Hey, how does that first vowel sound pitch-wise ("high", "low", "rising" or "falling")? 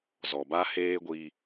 low